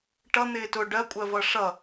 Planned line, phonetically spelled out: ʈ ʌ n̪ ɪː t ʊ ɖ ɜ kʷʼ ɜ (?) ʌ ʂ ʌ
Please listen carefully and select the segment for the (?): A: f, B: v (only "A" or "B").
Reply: B